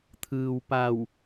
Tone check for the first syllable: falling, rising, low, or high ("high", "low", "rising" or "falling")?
low